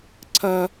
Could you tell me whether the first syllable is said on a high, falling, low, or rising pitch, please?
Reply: high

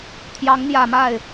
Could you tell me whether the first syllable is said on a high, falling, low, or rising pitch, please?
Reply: rising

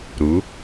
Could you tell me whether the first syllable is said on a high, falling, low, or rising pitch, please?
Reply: rising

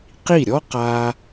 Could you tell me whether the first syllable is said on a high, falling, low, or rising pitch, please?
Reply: falling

